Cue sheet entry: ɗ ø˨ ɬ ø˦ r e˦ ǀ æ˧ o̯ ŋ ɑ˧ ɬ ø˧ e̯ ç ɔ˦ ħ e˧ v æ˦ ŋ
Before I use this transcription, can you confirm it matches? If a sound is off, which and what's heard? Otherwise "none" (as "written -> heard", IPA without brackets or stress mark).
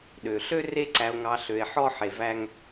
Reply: ç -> ħ